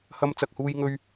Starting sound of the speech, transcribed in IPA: h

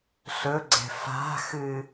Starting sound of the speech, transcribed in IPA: ɬ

